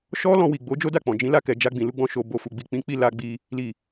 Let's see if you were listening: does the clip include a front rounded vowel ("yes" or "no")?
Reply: no